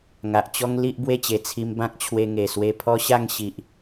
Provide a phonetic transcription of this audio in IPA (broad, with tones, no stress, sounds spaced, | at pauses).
ŋ a˨ ʔ t͡ɕ ɔ˦ ŋ l i˦ ʔ b w e˥˧ t͡ɕ e˨˩ t͡sʰ i˧ m b ã˦ k̚ t͡ɕʰ w e˧ ŋ e˨˩ s w e˧ pʰ ɔ˦ ɕ a˥˧ ŋ ɕ i˨ ʔ